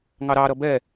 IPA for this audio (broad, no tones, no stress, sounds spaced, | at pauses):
ŋ ɑ ɾ ɑ ɾ ʌ b ɛ